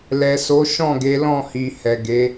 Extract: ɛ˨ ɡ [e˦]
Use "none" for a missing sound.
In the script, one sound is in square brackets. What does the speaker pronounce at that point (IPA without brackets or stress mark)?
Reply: e˨˦